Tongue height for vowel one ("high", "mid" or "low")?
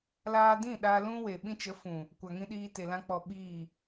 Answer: low